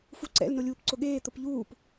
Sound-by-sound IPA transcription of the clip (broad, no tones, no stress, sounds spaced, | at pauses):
f u ǀ ɛ̰ l n o lʲ uː p ǀ ʊ ɠ eː t̪ ʊ p ʎ uː p